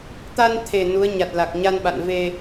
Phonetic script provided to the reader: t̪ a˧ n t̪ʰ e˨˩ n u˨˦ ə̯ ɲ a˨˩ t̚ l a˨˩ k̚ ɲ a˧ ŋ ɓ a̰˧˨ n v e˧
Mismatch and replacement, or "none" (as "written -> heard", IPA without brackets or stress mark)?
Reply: ŋ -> n